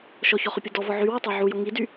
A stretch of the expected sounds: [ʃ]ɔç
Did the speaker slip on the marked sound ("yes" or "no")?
no